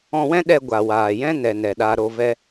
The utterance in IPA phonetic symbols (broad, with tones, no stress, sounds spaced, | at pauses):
ɔ̃˧ w ɛ̃˦ ɗ ɛ˧ ɡʷ a˨ w aː˨ j ɛ̃˦ n ɛ˧ n ɛ˨ ɗ a˦ ɾ o˧ v ɛ˦